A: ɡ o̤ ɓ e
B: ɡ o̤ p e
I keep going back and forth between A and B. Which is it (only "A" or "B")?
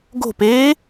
B